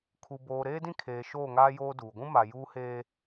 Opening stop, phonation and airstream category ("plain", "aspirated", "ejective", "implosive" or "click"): aspirated